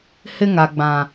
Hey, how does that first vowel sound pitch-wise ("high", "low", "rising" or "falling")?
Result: high